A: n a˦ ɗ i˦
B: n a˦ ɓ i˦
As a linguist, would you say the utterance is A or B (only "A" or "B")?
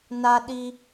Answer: A